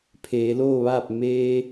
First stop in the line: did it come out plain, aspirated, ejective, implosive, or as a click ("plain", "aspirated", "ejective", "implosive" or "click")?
aspirated